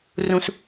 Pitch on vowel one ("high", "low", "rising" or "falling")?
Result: high